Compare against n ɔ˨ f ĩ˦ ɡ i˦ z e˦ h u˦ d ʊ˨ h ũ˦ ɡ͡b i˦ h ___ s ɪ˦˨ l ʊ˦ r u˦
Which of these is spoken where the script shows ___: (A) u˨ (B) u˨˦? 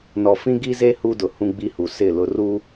A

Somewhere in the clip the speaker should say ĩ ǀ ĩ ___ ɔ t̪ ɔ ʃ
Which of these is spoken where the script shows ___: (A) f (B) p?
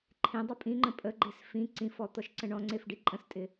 A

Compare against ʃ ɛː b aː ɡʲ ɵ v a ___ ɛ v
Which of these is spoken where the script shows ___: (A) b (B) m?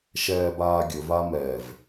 B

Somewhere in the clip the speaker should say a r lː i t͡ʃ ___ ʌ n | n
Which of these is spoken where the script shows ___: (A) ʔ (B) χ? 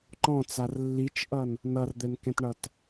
A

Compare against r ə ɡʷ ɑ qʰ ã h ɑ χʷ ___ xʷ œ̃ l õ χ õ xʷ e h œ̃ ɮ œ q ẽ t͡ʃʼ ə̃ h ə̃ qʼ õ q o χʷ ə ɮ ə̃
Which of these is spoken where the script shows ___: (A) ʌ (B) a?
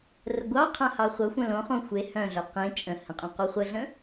A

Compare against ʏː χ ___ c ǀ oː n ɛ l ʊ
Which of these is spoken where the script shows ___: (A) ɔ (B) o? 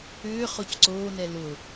B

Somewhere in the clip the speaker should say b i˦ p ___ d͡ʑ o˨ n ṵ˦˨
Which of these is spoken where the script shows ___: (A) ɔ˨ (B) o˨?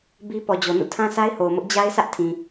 A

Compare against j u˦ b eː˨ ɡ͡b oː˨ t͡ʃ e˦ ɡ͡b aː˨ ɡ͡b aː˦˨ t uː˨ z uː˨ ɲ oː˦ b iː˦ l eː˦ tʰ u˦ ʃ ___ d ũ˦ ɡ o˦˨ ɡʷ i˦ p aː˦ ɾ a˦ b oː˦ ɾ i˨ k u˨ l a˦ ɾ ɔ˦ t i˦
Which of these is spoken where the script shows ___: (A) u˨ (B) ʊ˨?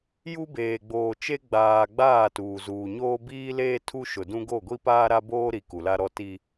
B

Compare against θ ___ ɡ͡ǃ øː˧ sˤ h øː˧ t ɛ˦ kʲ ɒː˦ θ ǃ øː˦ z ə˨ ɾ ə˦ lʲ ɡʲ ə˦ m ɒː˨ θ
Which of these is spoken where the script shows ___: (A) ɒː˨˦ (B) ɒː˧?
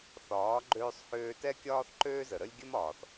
A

